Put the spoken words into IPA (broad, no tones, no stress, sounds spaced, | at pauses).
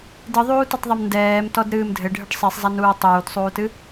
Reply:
d ɨ ðˤ uː t ɨ tˤ ðˤ ɐ m n d ɛː m t ɔ d ɾ ɨː m dʱ ɘ ɖʱ ɨ ɖ sˤ i sˤ zˤ a n uː tˤ uː d sˤ uː t ɨ